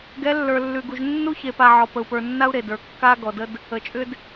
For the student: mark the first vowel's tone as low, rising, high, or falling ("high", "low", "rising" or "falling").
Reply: rising